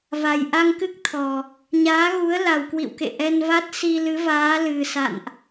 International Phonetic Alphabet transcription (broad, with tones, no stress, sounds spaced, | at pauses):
v a˨˩ j ʔ a˧ ŋ k ɨ˦˥ k̚ t̪ʰ ɔ˨˩ | ɲ aː˨˦ ɣ u˨˦ ə̯ l a˨˩ w k w ḭ˧˨ w k ḛ˧˨ ʔ ɛ˧ n v a˦˥ t̚ s i˧ l ɨ˨˦ v aː˨˦ l ɨ˨˩ s a̰˧˨ n ʔ